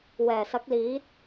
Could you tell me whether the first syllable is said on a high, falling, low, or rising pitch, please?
low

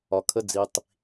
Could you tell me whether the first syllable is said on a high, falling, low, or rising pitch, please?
low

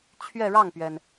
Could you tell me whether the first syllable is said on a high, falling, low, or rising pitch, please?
falling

